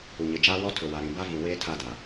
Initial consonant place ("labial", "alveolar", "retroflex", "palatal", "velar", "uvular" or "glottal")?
palatal